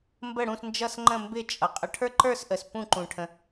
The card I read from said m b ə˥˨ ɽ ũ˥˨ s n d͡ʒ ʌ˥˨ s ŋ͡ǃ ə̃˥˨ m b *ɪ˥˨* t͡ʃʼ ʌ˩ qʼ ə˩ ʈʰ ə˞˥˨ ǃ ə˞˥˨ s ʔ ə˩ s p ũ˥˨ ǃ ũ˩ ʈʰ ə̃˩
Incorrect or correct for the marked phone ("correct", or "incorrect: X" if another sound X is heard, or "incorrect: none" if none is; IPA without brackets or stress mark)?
correct